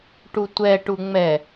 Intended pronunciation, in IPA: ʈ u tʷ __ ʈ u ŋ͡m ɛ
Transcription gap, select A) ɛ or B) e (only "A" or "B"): A